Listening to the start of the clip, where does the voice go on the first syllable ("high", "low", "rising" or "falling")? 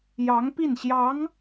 rising